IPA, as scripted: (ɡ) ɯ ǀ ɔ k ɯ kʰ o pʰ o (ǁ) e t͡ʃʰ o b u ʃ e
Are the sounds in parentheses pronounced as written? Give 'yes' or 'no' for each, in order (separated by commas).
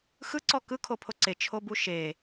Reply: no, no